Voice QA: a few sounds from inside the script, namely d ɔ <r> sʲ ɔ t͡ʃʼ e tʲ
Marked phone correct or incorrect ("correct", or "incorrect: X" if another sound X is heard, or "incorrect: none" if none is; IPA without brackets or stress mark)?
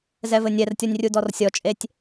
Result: correct